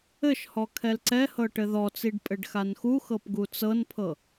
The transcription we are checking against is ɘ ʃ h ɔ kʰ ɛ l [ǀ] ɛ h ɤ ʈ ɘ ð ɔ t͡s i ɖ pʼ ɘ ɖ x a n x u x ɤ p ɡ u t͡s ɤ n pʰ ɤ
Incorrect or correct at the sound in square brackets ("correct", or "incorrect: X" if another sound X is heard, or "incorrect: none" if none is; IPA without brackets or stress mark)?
correct